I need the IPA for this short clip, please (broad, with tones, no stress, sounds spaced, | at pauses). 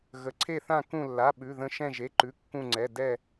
ɣ ə˩˧˩ ǀʰ e˧˩ θ ã˧˩ k ũ˧˩ lː a˩˧˩ ɓ ʉ˩˧˩ ð ə̃˧˩ ʃ ɛ̃˧˩ ʒ e˩˧˩ ǃ ʉ˩˧˩ kː ũ˧˩ ŋ͡ǀ ɛ˩˧˩ d ɛ˧˩